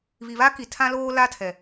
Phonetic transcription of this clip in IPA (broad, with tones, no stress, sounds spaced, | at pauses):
β i˨ β a˦ k i˨ tʰ ã˦ l oː˦ l a˦ tʰ ɛ˨